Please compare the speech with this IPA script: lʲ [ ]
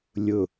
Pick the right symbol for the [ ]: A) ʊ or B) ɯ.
A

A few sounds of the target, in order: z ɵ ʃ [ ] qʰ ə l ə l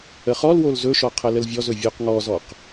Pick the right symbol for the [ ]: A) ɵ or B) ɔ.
B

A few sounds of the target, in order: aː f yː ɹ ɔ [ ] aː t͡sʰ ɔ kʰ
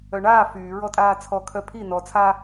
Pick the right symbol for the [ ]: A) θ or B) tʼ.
B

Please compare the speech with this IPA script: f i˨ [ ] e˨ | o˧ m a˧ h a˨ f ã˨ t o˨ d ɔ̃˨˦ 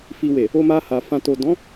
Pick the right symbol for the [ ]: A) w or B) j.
A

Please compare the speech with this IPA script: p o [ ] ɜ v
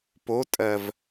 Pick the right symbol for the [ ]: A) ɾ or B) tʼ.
B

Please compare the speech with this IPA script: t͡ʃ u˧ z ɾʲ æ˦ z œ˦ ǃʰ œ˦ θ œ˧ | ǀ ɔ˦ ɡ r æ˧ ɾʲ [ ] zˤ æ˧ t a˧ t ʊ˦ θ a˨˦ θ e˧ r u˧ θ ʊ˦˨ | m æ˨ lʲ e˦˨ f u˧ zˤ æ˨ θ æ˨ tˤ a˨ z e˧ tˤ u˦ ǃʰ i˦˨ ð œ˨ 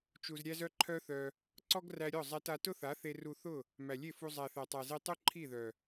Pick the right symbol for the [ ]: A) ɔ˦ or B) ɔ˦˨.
B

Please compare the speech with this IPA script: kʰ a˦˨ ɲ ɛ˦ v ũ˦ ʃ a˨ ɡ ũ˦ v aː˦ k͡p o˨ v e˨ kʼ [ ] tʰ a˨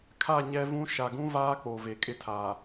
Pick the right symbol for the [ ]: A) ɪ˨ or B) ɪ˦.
B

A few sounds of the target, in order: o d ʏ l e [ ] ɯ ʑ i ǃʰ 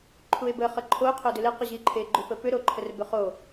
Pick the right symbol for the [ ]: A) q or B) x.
A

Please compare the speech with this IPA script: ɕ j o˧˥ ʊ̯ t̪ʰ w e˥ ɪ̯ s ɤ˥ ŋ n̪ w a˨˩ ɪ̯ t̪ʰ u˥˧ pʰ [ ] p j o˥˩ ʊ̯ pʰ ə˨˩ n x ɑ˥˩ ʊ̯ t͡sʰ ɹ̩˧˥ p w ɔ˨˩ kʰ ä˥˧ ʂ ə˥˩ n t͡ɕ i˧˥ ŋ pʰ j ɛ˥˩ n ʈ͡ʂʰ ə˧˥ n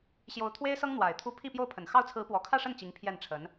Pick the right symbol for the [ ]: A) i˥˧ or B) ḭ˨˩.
A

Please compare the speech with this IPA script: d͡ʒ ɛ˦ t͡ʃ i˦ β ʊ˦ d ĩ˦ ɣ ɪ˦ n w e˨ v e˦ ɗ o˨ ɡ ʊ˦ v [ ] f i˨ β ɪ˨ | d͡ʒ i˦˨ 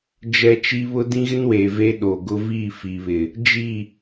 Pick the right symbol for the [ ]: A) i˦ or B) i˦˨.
B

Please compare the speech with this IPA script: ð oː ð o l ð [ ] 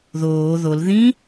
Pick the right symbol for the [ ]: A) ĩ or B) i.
A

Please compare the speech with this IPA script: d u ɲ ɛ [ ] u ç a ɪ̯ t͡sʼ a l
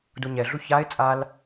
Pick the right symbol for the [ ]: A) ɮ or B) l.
A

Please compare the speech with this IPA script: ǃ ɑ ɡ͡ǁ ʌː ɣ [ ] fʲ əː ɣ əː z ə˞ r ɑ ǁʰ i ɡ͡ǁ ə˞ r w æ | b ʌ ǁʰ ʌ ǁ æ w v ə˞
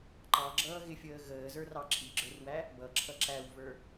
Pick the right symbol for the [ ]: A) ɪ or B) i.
A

